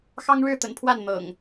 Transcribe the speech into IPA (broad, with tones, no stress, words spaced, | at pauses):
xɑ˦ŋɻɻ̩˥˨t̪ə̰˨˩npʰwa˥˨n n̪ɤ̰˨˩ŋ